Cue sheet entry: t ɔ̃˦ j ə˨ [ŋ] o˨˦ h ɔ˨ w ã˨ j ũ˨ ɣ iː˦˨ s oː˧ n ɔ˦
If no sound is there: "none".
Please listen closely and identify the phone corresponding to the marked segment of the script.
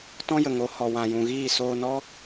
ŋ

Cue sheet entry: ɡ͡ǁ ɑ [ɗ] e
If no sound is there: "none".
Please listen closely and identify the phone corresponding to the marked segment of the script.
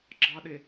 ɗ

